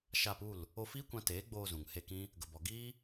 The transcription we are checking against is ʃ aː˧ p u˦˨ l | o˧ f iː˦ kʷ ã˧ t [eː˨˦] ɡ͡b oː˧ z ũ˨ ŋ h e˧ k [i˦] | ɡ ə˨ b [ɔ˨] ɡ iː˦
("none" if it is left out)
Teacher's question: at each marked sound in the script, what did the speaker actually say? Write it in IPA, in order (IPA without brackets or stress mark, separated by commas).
eː˨˦, ĩ˦, ɔ˨